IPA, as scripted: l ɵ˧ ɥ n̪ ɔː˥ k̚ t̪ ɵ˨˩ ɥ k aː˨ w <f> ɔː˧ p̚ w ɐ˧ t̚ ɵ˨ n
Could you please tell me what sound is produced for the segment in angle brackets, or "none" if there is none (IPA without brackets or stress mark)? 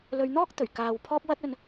pʰ